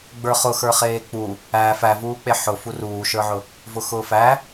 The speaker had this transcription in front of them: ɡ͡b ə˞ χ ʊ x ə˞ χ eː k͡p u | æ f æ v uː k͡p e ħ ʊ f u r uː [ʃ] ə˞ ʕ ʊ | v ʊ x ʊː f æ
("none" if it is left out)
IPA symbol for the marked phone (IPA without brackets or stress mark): ʃ